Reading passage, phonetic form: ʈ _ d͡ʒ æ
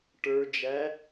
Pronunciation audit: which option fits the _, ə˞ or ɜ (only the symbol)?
ə˞